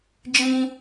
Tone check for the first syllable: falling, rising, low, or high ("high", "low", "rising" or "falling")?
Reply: high